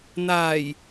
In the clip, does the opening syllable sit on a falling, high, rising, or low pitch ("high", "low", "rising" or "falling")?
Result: low